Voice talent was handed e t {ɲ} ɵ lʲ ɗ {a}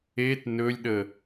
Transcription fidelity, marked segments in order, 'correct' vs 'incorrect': incorrect: n, incorrect: ə

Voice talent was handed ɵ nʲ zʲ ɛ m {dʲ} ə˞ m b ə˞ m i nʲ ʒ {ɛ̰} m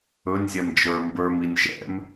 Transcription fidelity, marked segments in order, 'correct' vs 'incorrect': incorrect: d͡ʒ, correct

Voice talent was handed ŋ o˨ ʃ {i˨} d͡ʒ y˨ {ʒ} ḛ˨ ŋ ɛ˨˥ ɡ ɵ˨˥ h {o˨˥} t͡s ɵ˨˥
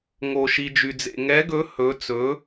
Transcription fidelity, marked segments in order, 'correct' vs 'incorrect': correct, incorrect: d͡z, incorrect: ɵ˨˥

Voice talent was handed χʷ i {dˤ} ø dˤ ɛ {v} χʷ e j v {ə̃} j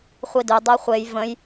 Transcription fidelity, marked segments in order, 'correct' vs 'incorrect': incorrect: d, incorrect: none, correct

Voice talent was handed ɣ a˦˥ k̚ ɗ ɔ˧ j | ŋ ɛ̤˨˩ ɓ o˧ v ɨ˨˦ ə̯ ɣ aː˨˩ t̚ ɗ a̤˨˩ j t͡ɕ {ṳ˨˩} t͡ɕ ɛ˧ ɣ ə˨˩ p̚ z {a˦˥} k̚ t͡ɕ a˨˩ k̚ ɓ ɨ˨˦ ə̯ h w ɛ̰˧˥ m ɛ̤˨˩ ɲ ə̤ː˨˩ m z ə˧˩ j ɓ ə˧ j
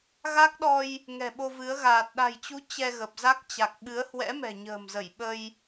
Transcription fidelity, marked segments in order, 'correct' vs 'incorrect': incorrect: u˨˦, correct

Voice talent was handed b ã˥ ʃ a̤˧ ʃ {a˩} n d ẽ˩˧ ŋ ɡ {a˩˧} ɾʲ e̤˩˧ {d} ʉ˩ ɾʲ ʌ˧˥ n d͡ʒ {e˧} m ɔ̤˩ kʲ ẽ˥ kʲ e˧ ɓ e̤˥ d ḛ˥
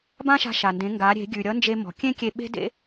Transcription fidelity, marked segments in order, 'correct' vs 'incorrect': correct, correct, incorrect: ɡʲ, correct

